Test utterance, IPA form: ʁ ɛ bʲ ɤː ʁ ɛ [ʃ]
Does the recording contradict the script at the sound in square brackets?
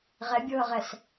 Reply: yes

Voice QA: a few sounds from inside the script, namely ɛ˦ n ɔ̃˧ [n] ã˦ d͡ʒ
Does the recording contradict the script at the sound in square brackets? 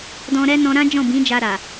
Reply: yes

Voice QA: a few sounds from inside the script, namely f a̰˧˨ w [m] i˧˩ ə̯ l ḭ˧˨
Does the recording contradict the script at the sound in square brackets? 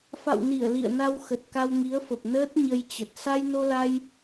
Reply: yes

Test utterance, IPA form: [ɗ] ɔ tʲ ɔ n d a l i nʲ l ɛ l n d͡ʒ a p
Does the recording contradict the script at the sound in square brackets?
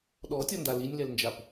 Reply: no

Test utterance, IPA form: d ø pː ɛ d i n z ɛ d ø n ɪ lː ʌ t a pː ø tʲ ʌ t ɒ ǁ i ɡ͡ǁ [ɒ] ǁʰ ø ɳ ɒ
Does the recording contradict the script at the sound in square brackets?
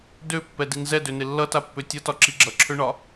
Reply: yes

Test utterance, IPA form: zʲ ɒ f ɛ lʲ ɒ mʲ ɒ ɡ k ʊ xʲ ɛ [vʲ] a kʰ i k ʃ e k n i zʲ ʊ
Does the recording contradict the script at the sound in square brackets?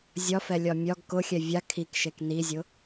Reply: no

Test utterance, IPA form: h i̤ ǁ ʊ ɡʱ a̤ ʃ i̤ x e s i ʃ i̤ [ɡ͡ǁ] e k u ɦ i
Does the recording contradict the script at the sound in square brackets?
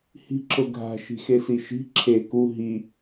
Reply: yes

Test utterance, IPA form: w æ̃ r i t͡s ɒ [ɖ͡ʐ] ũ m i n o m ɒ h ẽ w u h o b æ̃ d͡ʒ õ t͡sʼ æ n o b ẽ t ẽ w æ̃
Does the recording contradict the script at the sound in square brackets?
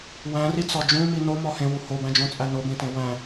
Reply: yes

